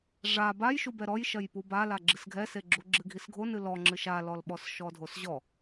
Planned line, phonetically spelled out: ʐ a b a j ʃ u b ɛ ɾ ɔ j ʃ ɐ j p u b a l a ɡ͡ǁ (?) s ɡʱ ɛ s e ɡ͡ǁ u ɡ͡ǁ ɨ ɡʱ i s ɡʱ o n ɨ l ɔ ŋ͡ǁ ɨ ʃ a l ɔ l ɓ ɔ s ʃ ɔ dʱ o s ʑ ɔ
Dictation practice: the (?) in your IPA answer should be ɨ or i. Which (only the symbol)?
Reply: ɨ